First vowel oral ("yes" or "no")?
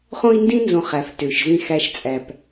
no